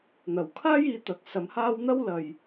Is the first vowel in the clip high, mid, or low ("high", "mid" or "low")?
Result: low